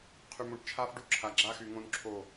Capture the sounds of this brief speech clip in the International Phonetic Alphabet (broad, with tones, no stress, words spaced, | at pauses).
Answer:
qʰy˨mũ˨ʈt͡ʃʰa˦f ɖu˦˨ǁʰa˨ ɡ͡ǁa˦xy˨ŋõ˦n ǁʰo˦˨